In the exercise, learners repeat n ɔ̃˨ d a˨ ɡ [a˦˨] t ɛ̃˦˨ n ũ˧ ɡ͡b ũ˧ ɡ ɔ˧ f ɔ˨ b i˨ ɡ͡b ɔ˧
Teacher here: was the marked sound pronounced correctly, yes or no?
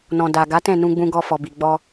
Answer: no